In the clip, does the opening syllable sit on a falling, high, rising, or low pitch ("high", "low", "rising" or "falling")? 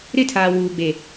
high